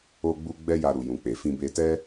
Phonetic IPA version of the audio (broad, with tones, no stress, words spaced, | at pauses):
o˧ɡ͡bu˧ ɡ͡bɛ˦ja˧ ɾu˨ jũ˨k͡pe˨ fĩ˧be˧tɛ˦